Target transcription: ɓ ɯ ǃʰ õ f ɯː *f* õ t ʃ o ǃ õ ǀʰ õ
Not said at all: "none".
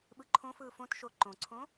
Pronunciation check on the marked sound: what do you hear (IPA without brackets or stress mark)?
f